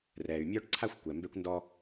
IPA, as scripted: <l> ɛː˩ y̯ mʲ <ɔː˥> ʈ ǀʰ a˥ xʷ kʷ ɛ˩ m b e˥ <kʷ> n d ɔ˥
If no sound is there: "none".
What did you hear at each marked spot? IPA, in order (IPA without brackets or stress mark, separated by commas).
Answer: r, ɔː˥, kʷ